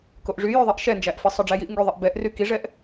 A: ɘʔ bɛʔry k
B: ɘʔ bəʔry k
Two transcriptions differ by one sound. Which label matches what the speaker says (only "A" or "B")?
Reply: A